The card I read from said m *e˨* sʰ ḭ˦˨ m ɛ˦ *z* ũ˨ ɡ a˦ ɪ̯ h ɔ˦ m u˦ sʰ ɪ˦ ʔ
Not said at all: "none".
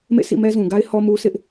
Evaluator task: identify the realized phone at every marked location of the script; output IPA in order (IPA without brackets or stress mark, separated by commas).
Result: ḛ˦˨, z